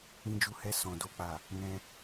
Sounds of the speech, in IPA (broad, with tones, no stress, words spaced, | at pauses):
ĩ˧d͡ʒu˧ hɛ˧sɔ̃˨ do˨k͡pa˨ | nɛ̃˧